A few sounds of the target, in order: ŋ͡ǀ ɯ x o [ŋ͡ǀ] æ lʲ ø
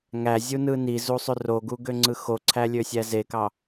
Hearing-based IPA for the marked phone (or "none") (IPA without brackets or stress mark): ǀʰ